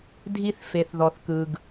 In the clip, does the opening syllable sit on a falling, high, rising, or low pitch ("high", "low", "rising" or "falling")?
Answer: high